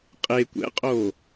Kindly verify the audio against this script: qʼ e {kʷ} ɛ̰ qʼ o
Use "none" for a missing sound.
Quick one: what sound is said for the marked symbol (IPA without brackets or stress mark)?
kʷ